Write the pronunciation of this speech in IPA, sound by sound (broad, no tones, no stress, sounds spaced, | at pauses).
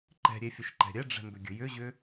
ǃ ɛ̤ ɾʲ e fʲ ɘ ʃ ǃ ɛ̤ ɾʲ ɛ ɖ͡ʐ ɛ̤ m b ʏ ɡʲ ə̤ j ʏ ʑ ʏ